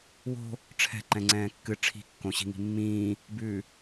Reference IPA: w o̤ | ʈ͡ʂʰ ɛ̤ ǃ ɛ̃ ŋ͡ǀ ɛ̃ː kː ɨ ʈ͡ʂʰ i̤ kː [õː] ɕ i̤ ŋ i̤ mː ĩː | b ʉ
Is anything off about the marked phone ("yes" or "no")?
yes